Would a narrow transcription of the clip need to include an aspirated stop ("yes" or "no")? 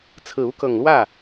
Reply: yes